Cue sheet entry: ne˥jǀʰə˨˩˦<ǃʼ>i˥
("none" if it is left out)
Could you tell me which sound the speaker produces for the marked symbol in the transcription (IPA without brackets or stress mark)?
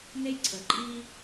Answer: ǃʼ